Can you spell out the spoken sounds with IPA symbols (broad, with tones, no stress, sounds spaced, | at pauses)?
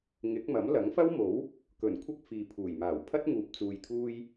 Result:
ŋ ɪ˨˥ k̚ m ɐ˨˥ m l ɐ˨˥ ŋ f ɐ˥ w m o˨˥ w | k ɵ˨˩ n kʷʰ ɐ˥ k̚ f iː˨ pʰ uː˨˩ j m aː˨˩ w pʰ ɐ˥ t̚ ŋ uː˨ p̚ t͡s uː˨ j t̪ʰ uː˧ j